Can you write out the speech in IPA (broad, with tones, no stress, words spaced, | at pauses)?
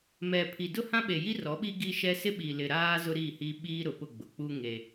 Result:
mɛ˨pʰi˨ dʊ˦hã˦ɓe˨ji˦ rɔ˨˦ɓi˦ ɡi˦ʃɛ˦ sɪ˦ɓi˨lɪ˨ ɾaː˦ zʊ˦ɾiː˦˨hiː˦ ɓiː˦ɾʊ˨pʊ˦˨ɡ͡bʊ˨ k͡pu˦ ŋe˦